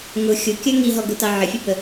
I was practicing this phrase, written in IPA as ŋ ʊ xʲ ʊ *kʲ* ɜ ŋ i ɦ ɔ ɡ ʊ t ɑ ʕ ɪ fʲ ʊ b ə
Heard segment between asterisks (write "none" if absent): kʲ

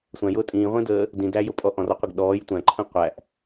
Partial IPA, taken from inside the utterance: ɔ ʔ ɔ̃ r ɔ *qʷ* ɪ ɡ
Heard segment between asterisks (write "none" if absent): qʷ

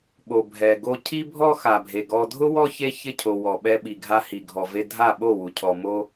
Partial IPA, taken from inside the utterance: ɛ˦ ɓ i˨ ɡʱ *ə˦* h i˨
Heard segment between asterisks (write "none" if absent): a˦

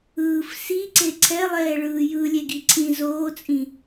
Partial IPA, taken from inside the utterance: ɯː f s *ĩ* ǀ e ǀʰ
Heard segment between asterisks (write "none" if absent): i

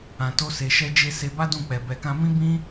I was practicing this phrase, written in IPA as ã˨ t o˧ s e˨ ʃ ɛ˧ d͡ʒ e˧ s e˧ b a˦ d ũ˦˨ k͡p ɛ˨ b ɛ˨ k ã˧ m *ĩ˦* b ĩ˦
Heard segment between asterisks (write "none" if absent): ĩ˦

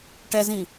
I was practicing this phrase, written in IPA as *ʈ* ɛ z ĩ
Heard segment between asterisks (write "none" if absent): ʈ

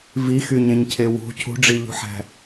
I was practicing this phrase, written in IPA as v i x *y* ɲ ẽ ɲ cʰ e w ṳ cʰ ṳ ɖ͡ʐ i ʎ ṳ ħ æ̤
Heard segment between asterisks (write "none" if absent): y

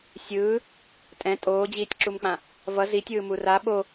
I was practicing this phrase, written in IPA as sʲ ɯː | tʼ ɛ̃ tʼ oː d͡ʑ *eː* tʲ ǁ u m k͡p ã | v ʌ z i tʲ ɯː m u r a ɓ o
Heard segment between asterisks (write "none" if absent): iː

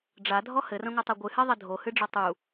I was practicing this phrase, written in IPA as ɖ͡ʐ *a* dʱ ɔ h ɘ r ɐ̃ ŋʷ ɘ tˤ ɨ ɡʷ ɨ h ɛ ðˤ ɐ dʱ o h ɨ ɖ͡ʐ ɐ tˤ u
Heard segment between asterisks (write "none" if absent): a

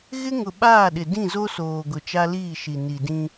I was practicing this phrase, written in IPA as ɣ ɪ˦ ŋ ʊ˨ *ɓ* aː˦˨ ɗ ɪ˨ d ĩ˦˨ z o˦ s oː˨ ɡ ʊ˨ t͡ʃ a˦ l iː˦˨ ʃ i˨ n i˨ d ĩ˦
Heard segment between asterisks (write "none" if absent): ɓ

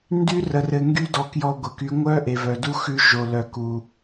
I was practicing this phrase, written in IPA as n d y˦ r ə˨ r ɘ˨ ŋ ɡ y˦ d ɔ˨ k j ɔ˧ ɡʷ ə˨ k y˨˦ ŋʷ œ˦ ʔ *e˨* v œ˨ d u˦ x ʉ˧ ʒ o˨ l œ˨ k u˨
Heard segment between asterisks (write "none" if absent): e˨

